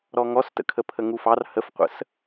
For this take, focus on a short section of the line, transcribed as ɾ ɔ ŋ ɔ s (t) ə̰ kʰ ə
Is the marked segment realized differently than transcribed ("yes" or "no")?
no